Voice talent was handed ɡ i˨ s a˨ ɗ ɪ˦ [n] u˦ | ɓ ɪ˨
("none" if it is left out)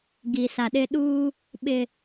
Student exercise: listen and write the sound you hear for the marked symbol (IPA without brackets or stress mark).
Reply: ɗ